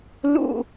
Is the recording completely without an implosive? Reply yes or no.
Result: yes